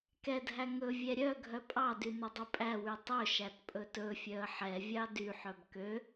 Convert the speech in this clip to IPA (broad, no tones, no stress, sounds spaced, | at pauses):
k ɛ dʱ æ ŋ ɵ vʲ ɛ ɾʲ œ ɡʱ œ pʼ ɑ d y n ɵ dˤ ɵ pʼ æ w y tˤ ɵ ʃ æ t pʼ ɵ t ɵ fʲ œ ə̯ ħ ɛ vʲ ɑ d y ħ œ b k ø